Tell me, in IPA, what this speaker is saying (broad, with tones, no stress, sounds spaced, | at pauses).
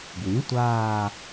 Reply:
ɡ w ĩ˩˥ tʷ aː˦˨